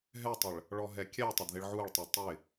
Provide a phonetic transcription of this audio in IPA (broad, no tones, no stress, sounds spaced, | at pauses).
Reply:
ɦ ɛ tˤ ə ɭ | ɭ ɔ ɦ ɛ kʲ ɛ tˤ ə d ð ɪ ɭ ʕ u ɭ tˤ ɛ tˤ ɪ